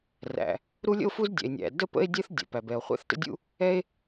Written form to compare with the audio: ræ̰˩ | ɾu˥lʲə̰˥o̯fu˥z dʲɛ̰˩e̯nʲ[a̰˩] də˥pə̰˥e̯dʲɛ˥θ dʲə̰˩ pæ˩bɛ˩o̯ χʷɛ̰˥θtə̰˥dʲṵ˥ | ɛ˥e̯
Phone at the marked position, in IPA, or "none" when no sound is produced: æ̰˩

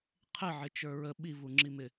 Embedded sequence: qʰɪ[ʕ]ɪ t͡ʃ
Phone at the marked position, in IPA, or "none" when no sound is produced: ʕ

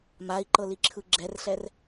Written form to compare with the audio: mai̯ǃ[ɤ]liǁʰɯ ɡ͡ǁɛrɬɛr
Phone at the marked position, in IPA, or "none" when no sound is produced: ɤ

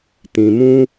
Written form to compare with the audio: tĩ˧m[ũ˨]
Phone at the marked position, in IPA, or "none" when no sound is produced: ũ˦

